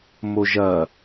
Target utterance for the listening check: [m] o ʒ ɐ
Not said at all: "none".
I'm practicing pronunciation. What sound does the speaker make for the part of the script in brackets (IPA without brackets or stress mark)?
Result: m